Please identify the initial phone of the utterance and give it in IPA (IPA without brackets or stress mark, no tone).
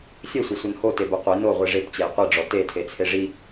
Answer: sʲ